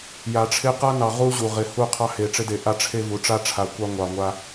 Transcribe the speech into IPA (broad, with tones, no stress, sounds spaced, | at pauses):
j a˨ ʈ͡ʂʰ ɪ˦ q a˦ n ɑ˨ ʁ u˦ ʑ u˨ ʁ ɪ˨ h u˦˨ qʰ ɑ˦ h e˨ ʈ͡ʂ ɪ˦ d e˨ ʔ a˦ ʈ͡ʂʰ e˦ v u˨ ʈ͡ʂ a˦ ʈ͡ʂʰ a˨ kʷ ɑ˦ ŋʷ ɑ˨ ŋʷ a˦